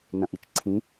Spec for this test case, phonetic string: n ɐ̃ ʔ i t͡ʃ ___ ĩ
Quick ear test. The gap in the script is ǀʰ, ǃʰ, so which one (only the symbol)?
ǀʰ